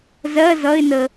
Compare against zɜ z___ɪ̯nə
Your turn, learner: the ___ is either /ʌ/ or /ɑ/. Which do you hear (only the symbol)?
ʌ